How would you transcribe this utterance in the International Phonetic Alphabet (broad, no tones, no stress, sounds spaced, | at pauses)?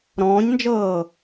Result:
ɾ ɔ̃ː ɲ n d͡ʒ ɤː